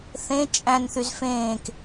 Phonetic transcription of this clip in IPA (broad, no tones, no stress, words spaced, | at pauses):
θẽ t͡ʃʼæ̃nθyz fẽːk